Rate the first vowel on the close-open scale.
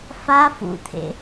open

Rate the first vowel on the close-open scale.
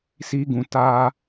close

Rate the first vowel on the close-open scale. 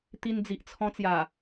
close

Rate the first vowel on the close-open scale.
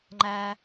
open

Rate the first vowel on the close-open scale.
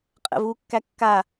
mid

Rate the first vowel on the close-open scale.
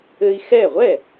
mid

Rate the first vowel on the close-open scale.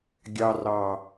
open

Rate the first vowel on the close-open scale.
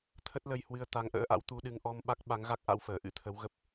mid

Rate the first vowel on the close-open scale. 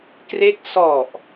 mid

